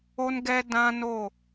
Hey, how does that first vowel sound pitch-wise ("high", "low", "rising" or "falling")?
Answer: high